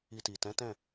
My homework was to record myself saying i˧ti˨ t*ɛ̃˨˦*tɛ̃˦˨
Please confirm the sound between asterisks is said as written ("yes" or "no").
yes